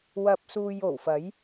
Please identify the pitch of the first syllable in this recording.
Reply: low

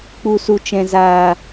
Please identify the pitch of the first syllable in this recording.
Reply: low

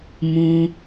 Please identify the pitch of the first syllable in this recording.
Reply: high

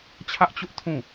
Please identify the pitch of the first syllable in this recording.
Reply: high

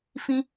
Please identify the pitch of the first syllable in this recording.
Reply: high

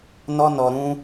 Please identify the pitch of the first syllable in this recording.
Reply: high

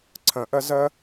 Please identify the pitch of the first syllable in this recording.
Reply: rising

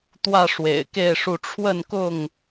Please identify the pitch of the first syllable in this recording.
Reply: falling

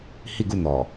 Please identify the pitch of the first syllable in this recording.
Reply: falling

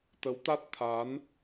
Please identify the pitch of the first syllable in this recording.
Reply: rising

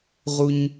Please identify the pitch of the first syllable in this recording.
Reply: high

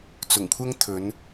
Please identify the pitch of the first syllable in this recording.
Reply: low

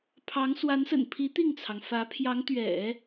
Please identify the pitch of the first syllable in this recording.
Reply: rising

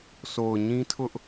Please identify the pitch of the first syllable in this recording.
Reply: low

